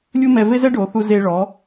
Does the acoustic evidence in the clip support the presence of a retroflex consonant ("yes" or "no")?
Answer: yes